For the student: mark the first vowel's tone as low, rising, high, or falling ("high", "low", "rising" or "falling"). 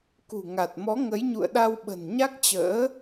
low